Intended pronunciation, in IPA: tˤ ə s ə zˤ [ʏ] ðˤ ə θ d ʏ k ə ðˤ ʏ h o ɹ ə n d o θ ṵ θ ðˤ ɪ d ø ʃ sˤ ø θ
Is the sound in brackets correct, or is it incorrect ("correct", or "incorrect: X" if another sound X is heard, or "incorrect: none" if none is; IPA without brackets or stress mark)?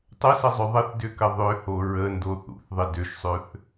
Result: correct